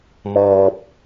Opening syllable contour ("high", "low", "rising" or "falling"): low